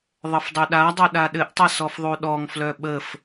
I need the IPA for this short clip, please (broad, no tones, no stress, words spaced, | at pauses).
ðˤəfdˤɵɗadˤɵ ɗaɗɘʔtˤɘ sɔfðˤuɗɔŋflœ ɓəf